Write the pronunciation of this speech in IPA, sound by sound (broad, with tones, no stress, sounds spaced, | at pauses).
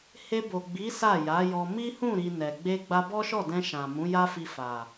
h e˧ b o˨ ɡ͡b i˨˦ s a˦˨ j a˨˦ j ɔ˧ m i˦ h ũ˦˨ ɾ i˨ n ɛ˨ ɡ͡b e˧ ɡ͡b a˧ b ɔ˦ ʃ ɔ˦˨ d ɛ̃˧ ʃ ã˨ m ũ˨˦ j a˦ f i˧ f a˨